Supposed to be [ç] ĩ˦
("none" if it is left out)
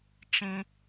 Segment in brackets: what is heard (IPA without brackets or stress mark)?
t͡ʃ